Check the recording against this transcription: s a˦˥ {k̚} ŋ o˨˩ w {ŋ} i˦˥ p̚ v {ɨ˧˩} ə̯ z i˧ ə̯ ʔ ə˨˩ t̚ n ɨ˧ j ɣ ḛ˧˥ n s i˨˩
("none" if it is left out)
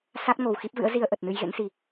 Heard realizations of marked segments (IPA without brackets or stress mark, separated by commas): t̚, x, ɨ̰˧˥